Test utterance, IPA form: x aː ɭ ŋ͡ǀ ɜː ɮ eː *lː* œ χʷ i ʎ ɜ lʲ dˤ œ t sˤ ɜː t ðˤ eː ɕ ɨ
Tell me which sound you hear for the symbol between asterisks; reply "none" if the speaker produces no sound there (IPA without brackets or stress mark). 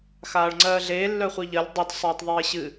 lː